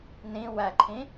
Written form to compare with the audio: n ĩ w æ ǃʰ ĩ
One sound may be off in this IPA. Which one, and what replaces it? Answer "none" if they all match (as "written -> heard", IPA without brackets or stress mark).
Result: none